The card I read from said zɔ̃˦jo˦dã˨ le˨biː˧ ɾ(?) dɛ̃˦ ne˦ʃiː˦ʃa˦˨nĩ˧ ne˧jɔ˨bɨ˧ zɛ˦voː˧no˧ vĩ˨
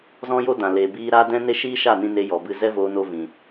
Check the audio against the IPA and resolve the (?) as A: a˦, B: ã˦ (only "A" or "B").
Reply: A